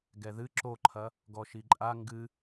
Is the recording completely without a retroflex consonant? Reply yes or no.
yes